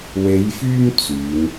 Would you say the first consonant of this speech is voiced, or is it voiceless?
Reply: voiced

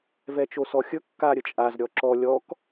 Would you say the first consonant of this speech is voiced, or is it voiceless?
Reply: voiced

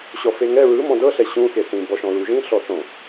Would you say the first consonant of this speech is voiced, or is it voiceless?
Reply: voiceless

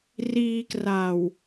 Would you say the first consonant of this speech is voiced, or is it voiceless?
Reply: voiced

